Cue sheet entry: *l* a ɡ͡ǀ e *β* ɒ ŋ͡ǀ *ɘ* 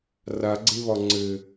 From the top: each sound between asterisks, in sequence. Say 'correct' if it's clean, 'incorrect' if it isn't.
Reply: incorrect, correct, correct

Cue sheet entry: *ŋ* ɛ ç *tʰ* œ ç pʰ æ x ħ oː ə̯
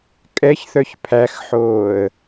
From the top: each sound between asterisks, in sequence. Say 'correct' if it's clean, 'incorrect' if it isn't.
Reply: incorrect, incorrect

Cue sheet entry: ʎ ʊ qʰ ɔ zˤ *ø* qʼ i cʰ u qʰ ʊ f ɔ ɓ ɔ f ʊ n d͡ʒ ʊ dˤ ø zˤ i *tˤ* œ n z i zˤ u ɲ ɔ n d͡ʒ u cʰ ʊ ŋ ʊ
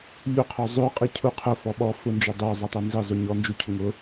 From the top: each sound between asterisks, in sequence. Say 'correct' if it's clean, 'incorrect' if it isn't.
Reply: correct, correct

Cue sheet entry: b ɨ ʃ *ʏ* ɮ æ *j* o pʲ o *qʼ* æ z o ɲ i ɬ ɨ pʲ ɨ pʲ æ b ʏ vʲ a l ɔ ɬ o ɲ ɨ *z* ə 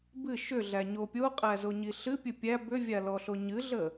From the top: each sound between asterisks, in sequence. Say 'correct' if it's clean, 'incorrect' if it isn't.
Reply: correct, incorrect, correct, incorrect

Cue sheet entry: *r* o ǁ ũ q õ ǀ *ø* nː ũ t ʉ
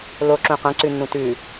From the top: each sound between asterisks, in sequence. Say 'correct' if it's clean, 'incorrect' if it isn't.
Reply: incorrect, incorrect

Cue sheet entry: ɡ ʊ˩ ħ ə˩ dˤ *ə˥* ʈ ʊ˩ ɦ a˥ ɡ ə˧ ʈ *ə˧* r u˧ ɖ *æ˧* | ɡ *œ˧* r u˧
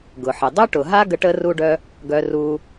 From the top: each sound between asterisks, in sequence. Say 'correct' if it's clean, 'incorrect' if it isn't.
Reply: incorrect, correct, incorrect, correct

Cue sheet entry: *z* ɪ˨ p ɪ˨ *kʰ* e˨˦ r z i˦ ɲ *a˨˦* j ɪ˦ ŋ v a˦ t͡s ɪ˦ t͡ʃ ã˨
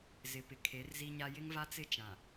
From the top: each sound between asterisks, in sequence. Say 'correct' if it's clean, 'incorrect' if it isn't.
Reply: correct, correct, incorrect

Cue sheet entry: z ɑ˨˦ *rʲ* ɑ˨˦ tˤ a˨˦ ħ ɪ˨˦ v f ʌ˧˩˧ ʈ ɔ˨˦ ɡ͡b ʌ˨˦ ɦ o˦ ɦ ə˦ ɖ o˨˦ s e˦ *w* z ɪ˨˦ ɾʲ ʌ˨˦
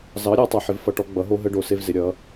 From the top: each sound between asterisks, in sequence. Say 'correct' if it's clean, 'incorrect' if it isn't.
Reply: incorrect, incorrect

